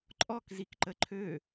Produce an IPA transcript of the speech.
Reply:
ǃʼ ɔ k z i k ǃ ə ǃʰ ø

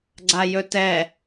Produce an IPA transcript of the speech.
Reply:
ɡ͡ǀ a j ɵ t ɛ

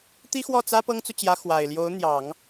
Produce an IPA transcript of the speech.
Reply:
t̪ i˥ x w ɔ˥˩ t͡s ä˥ p ɤ˥ ŋ t͡s u˨ t͡ɕ j ä˧˥ x w a˨˩ ɪ̯ l j o˧˥ ʊ̯ n̪ j ɑ˨˩˦ ŋ

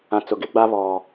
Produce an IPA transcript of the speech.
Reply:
ã˨ t͡s ʊ˨ ɡ ɪ˦ ɡ͡b a˦ β ɔ˨

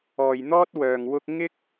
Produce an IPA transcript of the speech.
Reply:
ɔː˨ j n̪ ɔː˥ t̚ w œː˨ ŋ w ʊ˥ k̚ ŋ ɪ˥ k̚

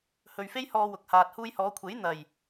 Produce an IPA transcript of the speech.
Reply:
h ɵ˨ ɥ f e˥ j h ɔː˧ w ʊ˨ k̚ h aː˨ t̚ h uː˧ j h ɔː˨˧ kʷʰ e˨˥ j n̪ ɐ˨˩ j

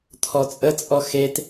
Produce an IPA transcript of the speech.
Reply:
t̪ʰ ɔ t͡sʼ ə t͡sʼ ɔ x e t

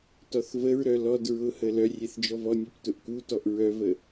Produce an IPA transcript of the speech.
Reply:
t ɔ θ v ə ɹ ɾ œ l ɔ d ɹ ʊ h ə l œ rʲ e θ d͡ʒ ɔ v ɔ nʲ ɛ p t ʊ ʔ k u t ɔ ʔ ɹ œ v ə

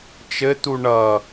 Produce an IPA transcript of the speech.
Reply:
t͡ʃ ɘ t̪ u ɳ ʌ

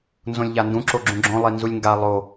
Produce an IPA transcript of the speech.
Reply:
n z õ lʲ ʎ a n d ũ ǁ o ɡ͡ǁ ũ ɡ͡ǁ õ lˠ i n z u lʲ ŋ ɡ a lˠ o

